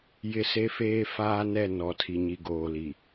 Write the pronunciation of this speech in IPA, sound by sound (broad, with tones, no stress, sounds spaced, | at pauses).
j ɪ˦ s e˦ f eː˦ f aː˦ n ɛ˦˨ n ɔ˨ tʰ i˨ ɲ i˨ ɡ oː˨ l i˨